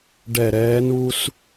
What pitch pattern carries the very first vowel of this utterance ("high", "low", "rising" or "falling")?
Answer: falling